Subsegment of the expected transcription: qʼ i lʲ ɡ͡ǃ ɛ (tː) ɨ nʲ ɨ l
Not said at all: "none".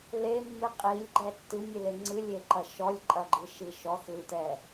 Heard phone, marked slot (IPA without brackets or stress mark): tː